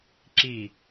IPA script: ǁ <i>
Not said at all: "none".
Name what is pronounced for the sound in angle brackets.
i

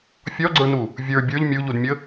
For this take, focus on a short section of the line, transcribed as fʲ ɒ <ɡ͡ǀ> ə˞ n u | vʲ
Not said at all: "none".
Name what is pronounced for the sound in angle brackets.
ɡ͡ǀ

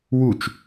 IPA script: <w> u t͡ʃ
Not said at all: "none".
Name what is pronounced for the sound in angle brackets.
w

